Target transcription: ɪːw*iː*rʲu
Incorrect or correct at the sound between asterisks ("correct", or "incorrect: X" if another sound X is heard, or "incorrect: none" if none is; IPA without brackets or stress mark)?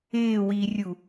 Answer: correct